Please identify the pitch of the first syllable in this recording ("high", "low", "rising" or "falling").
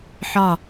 falling